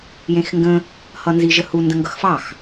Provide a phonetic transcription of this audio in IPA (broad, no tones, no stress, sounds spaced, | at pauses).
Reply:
j ẽ x ŋ ɡ ə̃ | h ʌ n z i ʒ ə h u n d ə̃ ŋ ɡ ʌ x f ɑ x